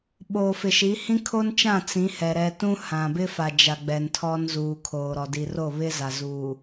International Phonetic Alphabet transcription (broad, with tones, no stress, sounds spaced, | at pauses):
ɓ oː˨ f ɪ˨ ʃ i˨˦ h ĩ˦ kʰ o˦ n t͡ʃ ã˦˨ t͡s ĩ˨˦ h ɛ˨ ɾ ɛ˨ t ũ˦ h ã˨ b ɪ˦ f a˨ d͡ʒ a˨ ɡ͡b ɛ˨ n tʰ ɔ˦ n z uː˨ kʰ oː˨ ɾ ɔ˨ d i˨ r o˦˨ β ɪ˦ z a˨ z uː˨